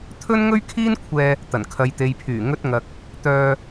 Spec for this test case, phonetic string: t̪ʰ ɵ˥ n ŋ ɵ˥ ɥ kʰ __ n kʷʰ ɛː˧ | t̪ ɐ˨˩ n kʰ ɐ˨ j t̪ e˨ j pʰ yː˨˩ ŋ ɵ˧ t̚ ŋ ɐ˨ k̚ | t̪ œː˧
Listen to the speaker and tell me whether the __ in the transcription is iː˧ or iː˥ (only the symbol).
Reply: iː˥